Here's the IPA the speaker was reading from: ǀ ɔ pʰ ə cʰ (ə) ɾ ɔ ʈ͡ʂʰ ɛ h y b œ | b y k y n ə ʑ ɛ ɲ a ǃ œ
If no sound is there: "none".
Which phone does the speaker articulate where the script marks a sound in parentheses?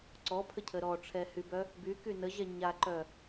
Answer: ə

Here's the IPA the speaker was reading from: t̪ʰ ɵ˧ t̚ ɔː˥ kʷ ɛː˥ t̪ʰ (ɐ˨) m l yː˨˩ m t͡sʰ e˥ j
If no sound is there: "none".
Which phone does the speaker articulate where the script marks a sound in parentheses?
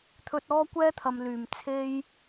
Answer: ɐ˨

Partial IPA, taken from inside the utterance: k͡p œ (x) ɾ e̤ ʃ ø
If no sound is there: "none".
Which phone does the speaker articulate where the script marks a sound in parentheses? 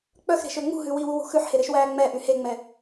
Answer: x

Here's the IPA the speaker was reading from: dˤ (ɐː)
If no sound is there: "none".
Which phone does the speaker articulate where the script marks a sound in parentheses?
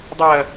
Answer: ɐː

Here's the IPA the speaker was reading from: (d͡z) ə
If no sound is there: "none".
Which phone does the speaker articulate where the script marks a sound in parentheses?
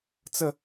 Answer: t͡s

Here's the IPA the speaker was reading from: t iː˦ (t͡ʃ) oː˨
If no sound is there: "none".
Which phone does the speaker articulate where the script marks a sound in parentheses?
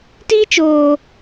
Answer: t͡ʃ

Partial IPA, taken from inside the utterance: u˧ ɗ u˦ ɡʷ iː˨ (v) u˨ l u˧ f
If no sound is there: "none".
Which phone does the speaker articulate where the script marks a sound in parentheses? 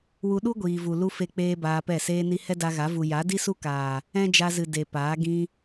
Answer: v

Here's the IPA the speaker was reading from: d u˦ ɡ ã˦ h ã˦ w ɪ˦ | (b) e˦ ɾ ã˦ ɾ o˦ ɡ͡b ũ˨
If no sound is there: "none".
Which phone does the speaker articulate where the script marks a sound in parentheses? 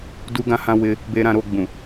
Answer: b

